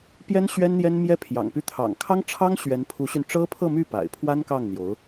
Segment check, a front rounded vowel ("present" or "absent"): present